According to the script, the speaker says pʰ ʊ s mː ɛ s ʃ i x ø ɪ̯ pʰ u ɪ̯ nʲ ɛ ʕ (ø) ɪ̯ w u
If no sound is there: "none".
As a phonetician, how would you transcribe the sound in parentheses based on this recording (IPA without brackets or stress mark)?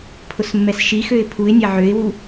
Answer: ø